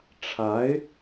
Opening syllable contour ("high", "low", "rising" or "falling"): rising